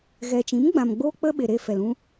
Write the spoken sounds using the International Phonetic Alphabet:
ɣɛ˨t͡ʃĩ˨˦mɡ͡bã˨m ɡ͡boː˦k͡pə˦ɓe˨ɾe˧ fɛ˨lũ˧

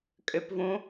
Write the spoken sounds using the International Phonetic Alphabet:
kʼʏpvũ

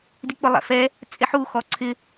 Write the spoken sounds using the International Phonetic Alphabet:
dik͡pʊlˠɛ̰fɛ | t͡sʼeħu xɔǀʰɪ

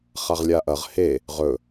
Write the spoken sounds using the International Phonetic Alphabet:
χaʁlʲaʔɐʁ he | ʁɵ

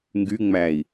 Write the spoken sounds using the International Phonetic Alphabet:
ŋɡyŋ͡mæi̯

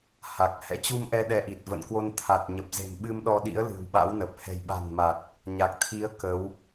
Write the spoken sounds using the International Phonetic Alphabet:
ha˨˩k̚hɛ̰˧˥ t͡ɕu˧mʔɛ˧ɗɛ˨˦ʔi˨˩t̚ və̰˧˨nkwo˧n t̪ʰa˨˩t̚ɲə˨˩p̚ ze̤˨˩mɓɨ˧mɗɔ˧ɗḭ˧˥ə̯ lɨ̤˨˩wɓa̰˧˥wnə˨˩p̚ hɛ̤˨˩jɓa̤˨˩nma˨˩t̚ | ɲa˨˩k̚t̪ʰi˨˦ə̯ kə˨˦w

